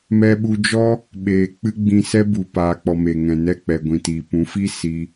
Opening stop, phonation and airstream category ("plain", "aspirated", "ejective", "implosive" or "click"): implosive